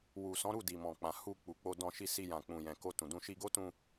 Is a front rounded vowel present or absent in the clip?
absent